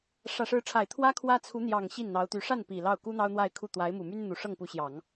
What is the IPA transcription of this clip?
ʂ ä˨˩ ʂ ɻ̩˧˥ ʈ͡ʂʰ a˨˩ ɪ̯ t̪ʰ w ä˥ kʰ w ä˥ t͡sʰ u˧˥ n̪ j ɑ˨˩ ŋ ɕ i˥˩ n n̪ ɑ˧˥ ʊ̯ t̪ y˧˥ ʂ a˥˩ n p i˨˩ l ɑ˥˩ ʊ̯ k u˥ n̪ ɑ˥ ʊ̯ n̪ w a˥˧ ɪ̯ kʰ u˥˩ t̪ w a˧˥ ɪ̯ m u˨˩ m y˥ n n̪ u˨˩ ʂ ɤ˥˩ ŋ p u˧˥ ɕ j ɑ˨˩˦ ŋ

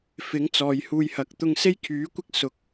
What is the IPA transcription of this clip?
f ɪ˨˥ ŋ t͡s ɔː˨ j h uː˧ j h ɐ˨˥ k̚ t̪ ʊ˧ ŋ s e˥ j kʰ yː˨˥ kʷ ɪ˥ k̚ s ʊ˧ k̚

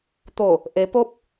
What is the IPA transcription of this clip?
t̪ o˧˩ | ʔ e˩˧ p o˧˥ p̚

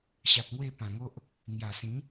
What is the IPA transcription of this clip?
ɕ a˨ p̚ ŋ w e˥˧ p ã˨˩ ŋ o˦ ʔ | ŋ j a˨˩ s ĩ˨˦

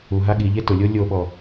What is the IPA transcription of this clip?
u ɦ a ɠ i ʎ e t ʊ lʲ o lʲ o ɓ ɔ

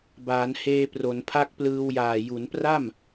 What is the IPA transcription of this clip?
b aː˩˦ n h eː˧ p r o˩˦ n pʰ a˥˩ k̚ p l ɯː˧ w j aː˨˩ j u˩˦ n p r a˥˩ m

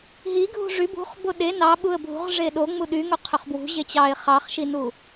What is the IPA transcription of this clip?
ɦ i ɡʱ ṳ ʐ y b ṳ χ b o ɗ e n ɑ ɓ u ə̯ bʱ ṳ ʁ ʐ e ɗ o ŋ͡m u ɗ y ŋ o qʰ ø χ b w ṳ ʑ e t͡ɕ ɑ ɪ̯ χ ɑ χ ʃ i n u

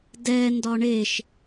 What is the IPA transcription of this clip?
d ɛ n d ɒ ɳ e ʃ

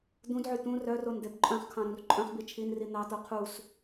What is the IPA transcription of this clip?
d̪ ũ d ʕ y t̪ ũ r œ r o n d̪ e b ǃʼ œ̃ χ kʰ ɑ̃ ɾ ũ r ǃʼ œ̃ χ b i t͡ʃʰ i n r i n̪ ɑ t̪ o qʰ u s

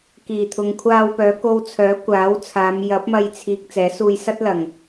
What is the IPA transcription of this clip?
k iː˨˩ t̪ʰ ʊ˨ ŋ kʷʰ aː˧ w p œː˨˧ k o˧ w t͡sʰ œː˨˥ kʷ aː˨˥ w t͡sʰ aː˨˧ m j ɐ˨˥ p̚ m ɐ˧ j t͡sʰ iː˨ k̚ t͡s ɛː˨˥ s uː˧ j s ɐ˥ t̚ l ɐ˨˩ ŋ

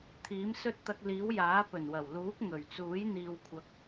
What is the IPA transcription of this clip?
t̪ʰ iː˨˥ m s ɵ˥ t̚ t̪ ɐ˧ k̚ l iː˨˥ w j aː˨˥ p ɵ˨˩ n w ɐ˨˩ w l uː˨˥ k̚ ŋ ɵ˨˩ ɥ t͡s uː˨˥ j n̪ iː˨ w kʷʰ ɐ˨˥ k̚

